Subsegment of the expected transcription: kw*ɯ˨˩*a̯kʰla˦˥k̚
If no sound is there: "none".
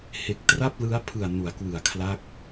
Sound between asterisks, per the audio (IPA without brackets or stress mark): ɯ˨˩